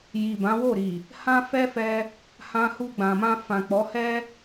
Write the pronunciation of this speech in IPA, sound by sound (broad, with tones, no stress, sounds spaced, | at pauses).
j i˨ b ã˨˦ w o˦˨ ɾ i˨ | h ã˦ f ɛ˦ f ɛ˧ | h ã˧ h u˧ ɡ͡b ã˨ m ã˧ f ã˨ k͡p ɔ˨˦ h ɛ˦